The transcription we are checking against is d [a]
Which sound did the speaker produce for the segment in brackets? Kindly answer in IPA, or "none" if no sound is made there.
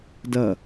ɐ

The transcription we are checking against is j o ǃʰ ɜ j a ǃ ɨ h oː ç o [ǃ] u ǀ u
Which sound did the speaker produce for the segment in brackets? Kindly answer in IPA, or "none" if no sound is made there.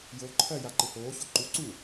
ǃ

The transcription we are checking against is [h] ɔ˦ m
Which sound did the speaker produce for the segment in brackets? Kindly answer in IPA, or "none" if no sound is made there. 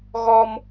ɣ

